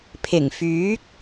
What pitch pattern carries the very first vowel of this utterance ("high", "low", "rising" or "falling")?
low